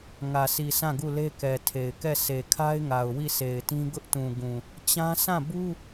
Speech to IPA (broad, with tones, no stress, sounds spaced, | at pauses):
ŋ ä˨ sʰ i˨ sʰ ã˦˨ ɡ u˦˨ l e˦ k ɛ˨ tʰ e˨ ɪ̯ k ɛ˦˨ sʰ e˨ kʰ a˦ ɪ̯ ŋ a˨ ʊ̯ w i˦˨ sʰ e˨ ɪ̯ t ĩ˦ ɡ ʊ˦ ʔ t ũ˨ ɡ ũ˨ | t͡ɕ ã˦ s ã˦˨ b u˦